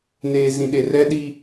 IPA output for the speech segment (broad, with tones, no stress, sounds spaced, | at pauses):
n eː˨ z ĩ˨ ɗ e˨ r ɛ˦ ɗ i˦